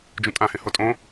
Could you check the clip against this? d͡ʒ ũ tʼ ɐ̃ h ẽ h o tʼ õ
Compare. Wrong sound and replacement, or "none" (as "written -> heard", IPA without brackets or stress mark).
ɐ̃ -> ã